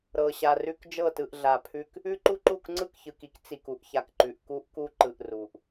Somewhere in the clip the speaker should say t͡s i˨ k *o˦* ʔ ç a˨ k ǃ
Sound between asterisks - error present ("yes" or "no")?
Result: yes